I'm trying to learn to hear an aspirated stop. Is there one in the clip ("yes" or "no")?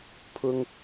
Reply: yes